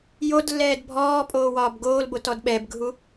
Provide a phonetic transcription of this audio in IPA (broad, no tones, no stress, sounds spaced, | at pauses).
j o d lː ɛː d bʱ ɔː pʼ oː w ɒː b ɡ oː l b o t ɔ d ɓ ɛ b ɡʱ u